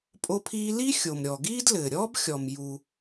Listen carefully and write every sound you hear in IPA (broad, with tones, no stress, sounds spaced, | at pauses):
pʼ o˥ pʰ iː˥ l i˥ xʲ o˩ m ɾʲ ɔ˩ ɡ iː˥ d l ɘː˩ ɾʲ ɔː˥ b xʲ ɔ˩ m j u˩